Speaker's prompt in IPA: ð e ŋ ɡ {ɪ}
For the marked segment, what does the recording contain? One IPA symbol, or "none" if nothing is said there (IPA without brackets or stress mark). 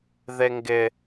ɪ